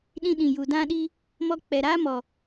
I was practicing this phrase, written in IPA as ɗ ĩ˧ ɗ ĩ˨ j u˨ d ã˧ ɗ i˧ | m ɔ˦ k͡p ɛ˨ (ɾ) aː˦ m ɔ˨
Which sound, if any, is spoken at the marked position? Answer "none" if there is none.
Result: ɾ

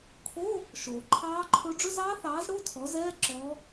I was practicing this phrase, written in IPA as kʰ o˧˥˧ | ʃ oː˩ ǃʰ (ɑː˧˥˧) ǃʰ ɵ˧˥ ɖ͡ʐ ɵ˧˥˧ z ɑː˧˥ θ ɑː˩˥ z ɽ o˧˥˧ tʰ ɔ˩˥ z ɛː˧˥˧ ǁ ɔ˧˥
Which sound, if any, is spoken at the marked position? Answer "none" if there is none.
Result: ɑː˧˥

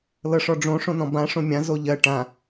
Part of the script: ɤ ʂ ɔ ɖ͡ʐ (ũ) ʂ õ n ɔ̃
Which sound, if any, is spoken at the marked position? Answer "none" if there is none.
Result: õ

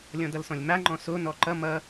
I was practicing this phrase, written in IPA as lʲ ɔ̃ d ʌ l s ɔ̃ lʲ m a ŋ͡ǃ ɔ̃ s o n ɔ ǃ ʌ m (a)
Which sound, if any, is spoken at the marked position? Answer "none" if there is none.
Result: ʌ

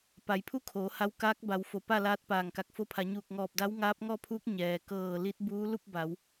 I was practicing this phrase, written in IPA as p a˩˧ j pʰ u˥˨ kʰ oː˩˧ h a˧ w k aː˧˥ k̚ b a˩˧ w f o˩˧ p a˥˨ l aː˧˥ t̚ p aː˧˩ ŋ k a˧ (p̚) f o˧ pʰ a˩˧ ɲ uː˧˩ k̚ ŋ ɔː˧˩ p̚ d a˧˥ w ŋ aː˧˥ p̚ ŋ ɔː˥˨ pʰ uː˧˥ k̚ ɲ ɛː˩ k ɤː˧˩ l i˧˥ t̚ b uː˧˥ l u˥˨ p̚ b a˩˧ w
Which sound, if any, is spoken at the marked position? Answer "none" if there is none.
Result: k̚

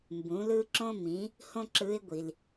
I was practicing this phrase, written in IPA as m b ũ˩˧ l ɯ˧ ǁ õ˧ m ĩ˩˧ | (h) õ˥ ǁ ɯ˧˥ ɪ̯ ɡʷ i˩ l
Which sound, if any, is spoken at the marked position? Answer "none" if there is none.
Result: h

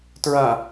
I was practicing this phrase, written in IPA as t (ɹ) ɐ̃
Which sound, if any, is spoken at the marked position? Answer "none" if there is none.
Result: ɹ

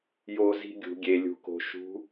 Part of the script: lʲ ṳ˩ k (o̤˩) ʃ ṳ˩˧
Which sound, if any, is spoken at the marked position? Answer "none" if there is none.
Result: o̤˩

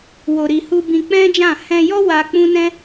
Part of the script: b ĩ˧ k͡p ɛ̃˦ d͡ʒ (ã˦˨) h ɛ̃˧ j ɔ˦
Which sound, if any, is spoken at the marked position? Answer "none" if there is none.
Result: ã˦˨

